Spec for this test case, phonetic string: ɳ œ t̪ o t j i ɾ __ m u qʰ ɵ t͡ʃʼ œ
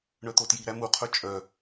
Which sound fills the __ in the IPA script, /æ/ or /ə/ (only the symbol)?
æ